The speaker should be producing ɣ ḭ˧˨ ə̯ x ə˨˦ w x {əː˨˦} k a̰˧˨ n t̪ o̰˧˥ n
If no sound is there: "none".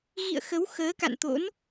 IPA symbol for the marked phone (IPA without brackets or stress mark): əː˨˦